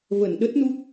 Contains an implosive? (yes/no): yes